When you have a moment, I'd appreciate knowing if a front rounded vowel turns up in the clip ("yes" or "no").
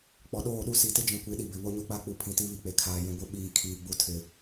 no